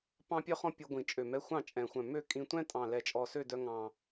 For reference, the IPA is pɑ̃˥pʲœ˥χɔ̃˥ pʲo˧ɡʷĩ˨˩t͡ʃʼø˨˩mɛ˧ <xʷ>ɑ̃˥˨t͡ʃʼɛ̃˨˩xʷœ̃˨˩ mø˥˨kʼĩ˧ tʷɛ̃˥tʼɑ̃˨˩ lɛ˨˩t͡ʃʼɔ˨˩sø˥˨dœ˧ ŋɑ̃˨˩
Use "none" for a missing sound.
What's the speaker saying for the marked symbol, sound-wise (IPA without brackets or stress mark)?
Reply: xʷ